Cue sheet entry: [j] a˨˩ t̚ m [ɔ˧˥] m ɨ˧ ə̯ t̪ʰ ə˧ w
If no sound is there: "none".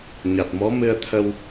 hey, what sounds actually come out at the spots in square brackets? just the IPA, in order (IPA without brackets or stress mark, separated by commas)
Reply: ɲ, ɔ˧˥